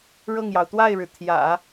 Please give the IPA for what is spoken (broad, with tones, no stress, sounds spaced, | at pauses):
ɻ ɤ˥˩ ŋ j ɑ˩ ʊ̯ t̪ w a˥˩ ɪ̯ ɻ ɻ̩˩ t̪ʰ j ä̰˨˩˦